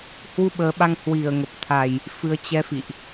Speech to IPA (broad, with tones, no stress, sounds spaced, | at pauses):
h w u˧ ɓ əː˨˦ ɓ a˧ ŋ h w i˧˩ ə̯ ŋ ə˨˩ p̚ t̪ʰ a˨˩ j | f ɨ˧ ə̯ t͡ɕ ɛ˧ f ḭ˧˨ ʔ